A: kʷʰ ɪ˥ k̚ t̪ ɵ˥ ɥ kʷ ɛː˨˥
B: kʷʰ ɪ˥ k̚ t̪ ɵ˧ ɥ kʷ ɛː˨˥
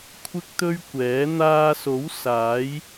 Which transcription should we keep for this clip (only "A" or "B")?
A